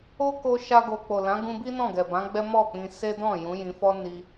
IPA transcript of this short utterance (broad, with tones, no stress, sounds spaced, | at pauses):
o˦ k o˧ ʃ a˧ ɡ o˨ k͡p o˨ l ã˨˦ ɡ ũ˧ b i˦ n ɔ̃˦˨ ɡ ɛ˨ b ã˨˦ ɡ͡b ɛ˦ m ɔ˦˨ k͡p ĩ˧ s e˦ d ɔ̃˦˨ j ũ˨˦ j ĩ˧ f ɔ˦ n i˦